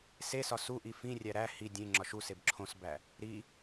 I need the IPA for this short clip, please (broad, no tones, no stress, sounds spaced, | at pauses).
s e s ɒ s u ʔ i f ĩ rʲ æ ɾ æ h i dʲ ẽ ŋ͡ǁ ɒ ʃ u s e b ǁʰ õ s b æ | ɾ i